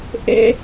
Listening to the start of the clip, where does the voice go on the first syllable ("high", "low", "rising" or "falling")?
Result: high